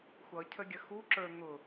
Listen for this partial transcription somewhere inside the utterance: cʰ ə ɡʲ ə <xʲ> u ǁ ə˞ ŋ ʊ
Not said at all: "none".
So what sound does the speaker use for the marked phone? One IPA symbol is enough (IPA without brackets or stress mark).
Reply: x